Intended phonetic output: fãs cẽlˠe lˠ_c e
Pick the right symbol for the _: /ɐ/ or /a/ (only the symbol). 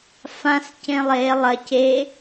ɐ